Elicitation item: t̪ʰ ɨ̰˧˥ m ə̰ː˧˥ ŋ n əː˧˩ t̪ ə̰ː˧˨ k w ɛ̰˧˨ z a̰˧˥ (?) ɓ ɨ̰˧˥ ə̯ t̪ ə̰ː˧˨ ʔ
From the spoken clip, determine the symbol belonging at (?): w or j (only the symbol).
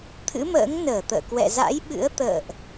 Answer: j